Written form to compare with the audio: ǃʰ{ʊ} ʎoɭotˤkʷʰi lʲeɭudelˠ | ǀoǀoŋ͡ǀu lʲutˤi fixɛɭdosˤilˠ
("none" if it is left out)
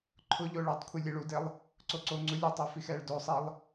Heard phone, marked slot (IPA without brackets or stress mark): ʊ